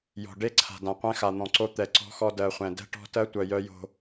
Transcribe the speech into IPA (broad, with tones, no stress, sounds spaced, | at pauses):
j ɔ̤˨ ɖ e˦ ǀʰ a̤˨ d ã˨ qʷ ɛ̃˦ x a˨ n̪ ɔ̃˨ ǀ o˦ t̪ ɛ˨ ǀ ɔ̤˦ x ɔ˦ d ɜ˨ χʷ ɛ̃˨ d ɛ̤˦ ʈ ɔ̤˦ t ɜ˦ tʷ œ˨ j œ˦ j o̤˦